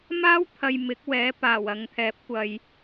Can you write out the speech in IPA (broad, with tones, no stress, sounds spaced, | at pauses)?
m aː˥ w t̪ʰ ɐ˨ j m ɪ˨˥ k̚ w ɛː˨˥ p aː˨˩ w ɐ˨ ŋ t̪ʰ ɛː˨˥ p̚ kʷ ɐ˨ j